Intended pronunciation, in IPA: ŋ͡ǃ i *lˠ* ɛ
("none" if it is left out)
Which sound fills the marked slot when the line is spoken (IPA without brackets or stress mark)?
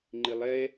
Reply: lˠ